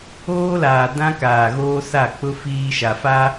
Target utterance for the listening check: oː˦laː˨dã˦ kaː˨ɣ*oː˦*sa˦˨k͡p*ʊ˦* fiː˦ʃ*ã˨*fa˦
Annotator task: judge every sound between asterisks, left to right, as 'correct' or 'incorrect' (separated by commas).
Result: correct, correct, incorrect